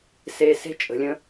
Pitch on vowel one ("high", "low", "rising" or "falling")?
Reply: low